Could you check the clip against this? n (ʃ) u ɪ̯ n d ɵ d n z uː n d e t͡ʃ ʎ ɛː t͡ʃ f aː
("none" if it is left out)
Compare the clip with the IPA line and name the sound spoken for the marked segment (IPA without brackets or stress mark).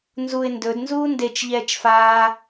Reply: z